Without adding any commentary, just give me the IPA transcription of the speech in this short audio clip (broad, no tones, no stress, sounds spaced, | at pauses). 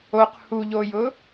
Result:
o q h u ʎ o j ʊ